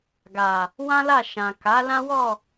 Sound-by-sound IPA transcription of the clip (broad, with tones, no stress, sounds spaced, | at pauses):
ɡ a˨ | w ã˦ l a˦˨ ʃ ã˨ k a˨˦ l ã˦ w ɔ˦˨